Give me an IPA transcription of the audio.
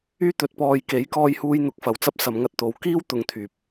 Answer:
yː˥ t̪ ɵ˨˥ t̚ p ɔː˧ j k e˨˥ j k ɔː˧ j h uː˧ j n̪ ʊ˨˥ k̚ f ɐ˨ w t͡s ɐ˥ p̚ s ɐ˨˧ m ŋ ɐ˧ t̚ t̪ o˨˧ w k iː˥ w t̪ ʊ˨˧ ŋ t̪ʰ yː˨ p̚

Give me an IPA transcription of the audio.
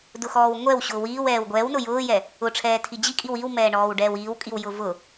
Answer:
d ʊ x ɔː w ŋʷ ɛ w ɕ ʊː w iː w ɛː w ɡʷ ɛː w n ʊ j ʊː j ɛ | ʊ ʈ͡ʂʰ ɛː tʰ i d͡ʑ i kʼ i w i w m ɛː ɳ ɔː w ɖ ɛː w iː w kʼ i w j ʊ v ʊ

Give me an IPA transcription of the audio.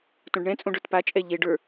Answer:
t õ ɖ ɳ ɛ̃ t͡sʼ õ ɖ ə˞ t p a t͡ʃʼ ɛ ʎ e ɖ ə˞

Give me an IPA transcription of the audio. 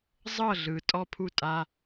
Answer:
zˤ ɤ˥˩ ɮ ɯ˩ tʼ ɔ˥˩ pʰ u˥˩ tʼ a˩˧˩

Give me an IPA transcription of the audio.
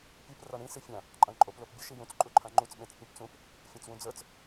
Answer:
pʲ ɯ p r a ɳ ĩ s i fʲ ã | ǃʼ ã ɳ ǃʼ o p l o p bʲ ʊ ʃ i j ũ t͡s ǃʼ u ǃʰ ã ŋ͡ǃ u t͡s ɓ ẽ t͡s pʲ ũ p t͡s ũ p | fʲ ã t͡s w ũ d͡z ə˞ t͡s

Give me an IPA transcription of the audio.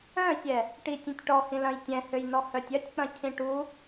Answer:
œ̃ sʲ ɛ | ʈ i tʲ ĩ tʲ ʈ ɔ h ĩ l ɐ̃ j tʲ ɛ̃ h ø j n ɔ h œ tʲ ɐ tʲ k͡p ɐ̃ cʰ ĩ ʈ u

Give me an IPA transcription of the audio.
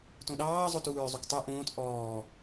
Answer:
t õ ɗ ɑː zˤ o t uː ɹ zˤ u k tˤ u ʔ õː t ʔ ɔː

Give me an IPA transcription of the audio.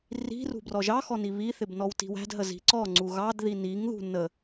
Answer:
r i̤ r ṳ b r ɔ ʒ ɑ x ɔ n i β i θ ɪ b n ɔ w t i̤ w æ̤ d ɦ ə z i̤ ǀ ɔ ŋ͡ǀ u ɣ ɑ d ð i n i ŋ ð ṳ n ə

